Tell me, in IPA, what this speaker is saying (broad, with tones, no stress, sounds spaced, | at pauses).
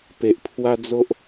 p e˨ ʔ pʰ w a˦ d͡z o˦ ʔ